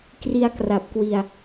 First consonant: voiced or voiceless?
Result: voiceless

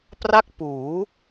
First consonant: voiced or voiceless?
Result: voiceless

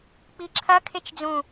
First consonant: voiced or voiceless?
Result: voiceless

